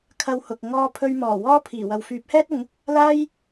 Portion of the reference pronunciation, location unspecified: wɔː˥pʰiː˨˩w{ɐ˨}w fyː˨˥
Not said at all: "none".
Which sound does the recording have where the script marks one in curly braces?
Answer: ɐ˨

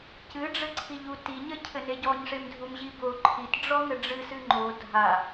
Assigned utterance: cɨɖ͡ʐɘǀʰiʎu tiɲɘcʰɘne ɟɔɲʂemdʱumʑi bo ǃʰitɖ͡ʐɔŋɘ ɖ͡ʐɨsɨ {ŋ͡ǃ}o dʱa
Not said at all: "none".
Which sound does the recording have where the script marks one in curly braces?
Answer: ŋ͡ǃ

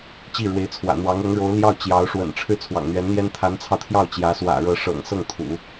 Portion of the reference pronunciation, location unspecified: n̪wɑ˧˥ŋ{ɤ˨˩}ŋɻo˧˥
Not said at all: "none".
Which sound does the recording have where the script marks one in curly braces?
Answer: ɤ˧˥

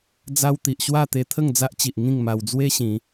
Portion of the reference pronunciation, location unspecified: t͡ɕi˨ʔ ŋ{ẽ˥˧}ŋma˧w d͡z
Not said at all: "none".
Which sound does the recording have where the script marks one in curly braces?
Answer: ĩ˥˧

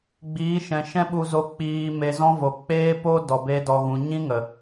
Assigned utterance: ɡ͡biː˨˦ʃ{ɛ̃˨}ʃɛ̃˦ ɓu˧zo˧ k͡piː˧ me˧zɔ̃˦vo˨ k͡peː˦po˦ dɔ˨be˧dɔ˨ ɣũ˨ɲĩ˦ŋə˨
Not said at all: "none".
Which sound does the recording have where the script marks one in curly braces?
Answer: ɛ̃˨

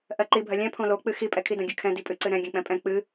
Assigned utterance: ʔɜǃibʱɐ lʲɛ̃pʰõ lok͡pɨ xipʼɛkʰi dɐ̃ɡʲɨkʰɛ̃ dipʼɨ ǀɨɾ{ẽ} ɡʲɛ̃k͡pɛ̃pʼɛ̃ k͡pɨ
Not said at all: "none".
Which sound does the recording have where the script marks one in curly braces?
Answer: ɛ̃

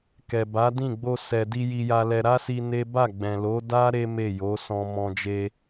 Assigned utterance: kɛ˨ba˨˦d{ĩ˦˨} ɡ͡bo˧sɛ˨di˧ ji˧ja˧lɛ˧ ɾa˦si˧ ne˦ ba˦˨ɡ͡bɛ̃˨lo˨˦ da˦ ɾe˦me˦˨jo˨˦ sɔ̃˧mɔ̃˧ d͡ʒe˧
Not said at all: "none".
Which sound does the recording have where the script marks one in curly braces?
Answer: ĩ˦˨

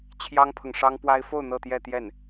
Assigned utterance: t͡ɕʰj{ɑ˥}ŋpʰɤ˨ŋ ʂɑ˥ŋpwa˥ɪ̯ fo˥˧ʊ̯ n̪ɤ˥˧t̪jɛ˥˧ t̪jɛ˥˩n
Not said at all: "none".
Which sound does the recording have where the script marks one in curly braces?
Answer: ɑ˥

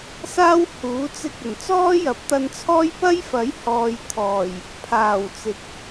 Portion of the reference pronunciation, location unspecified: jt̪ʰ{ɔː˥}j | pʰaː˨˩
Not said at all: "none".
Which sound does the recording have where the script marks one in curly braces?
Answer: ɔː˨˩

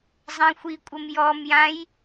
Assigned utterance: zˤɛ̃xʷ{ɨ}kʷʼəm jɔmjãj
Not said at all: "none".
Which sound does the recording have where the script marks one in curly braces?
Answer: i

